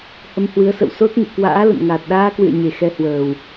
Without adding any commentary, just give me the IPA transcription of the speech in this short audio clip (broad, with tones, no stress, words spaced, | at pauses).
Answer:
hə˧mhwɨ˨˦ə̯sə̰˧˨w so˦˥t̚ŋɨ̰˧˨ kwa̰ː˧˥lə̰˧˨n ŋaː˨˩t̚ɗaː˧kwɨ̰˧˨ə̯ ɲe˨˩xɛ˧hwəː˨˩w